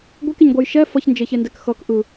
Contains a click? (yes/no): no